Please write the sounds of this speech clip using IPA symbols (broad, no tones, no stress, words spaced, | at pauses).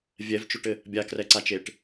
vʲɛvt͡ʃoʈɘ | bʲakrɛǀat͡ʃeʈ